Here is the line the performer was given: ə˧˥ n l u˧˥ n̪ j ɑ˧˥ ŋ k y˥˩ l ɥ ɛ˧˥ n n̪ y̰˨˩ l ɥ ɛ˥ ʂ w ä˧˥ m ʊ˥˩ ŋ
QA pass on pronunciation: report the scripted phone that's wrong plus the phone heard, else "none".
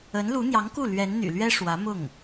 y˥˩ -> u˥˩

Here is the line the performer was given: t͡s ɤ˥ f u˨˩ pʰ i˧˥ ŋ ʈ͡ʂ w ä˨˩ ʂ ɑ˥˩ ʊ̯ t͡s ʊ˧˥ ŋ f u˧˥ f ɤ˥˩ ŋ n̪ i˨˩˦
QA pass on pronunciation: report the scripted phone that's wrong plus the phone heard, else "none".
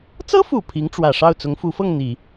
none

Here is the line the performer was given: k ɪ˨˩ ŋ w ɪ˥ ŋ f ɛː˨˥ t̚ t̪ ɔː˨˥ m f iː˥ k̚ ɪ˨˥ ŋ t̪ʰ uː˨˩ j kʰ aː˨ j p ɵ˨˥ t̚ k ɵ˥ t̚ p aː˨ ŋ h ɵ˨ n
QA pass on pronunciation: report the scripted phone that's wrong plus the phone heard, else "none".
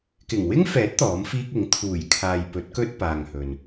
none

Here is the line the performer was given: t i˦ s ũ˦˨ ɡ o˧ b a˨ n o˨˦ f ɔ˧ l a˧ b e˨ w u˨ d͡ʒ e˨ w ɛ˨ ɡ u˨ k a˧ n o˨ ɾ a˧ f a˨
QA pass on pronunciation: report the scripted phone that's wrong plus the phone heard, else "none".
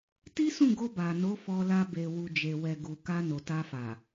ɾ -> t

